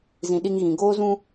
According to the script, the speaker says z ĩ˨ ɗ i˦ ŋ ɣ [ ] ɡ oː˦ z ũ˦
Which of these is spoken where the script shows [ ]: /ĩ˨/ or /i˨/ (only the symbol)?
ĩ˨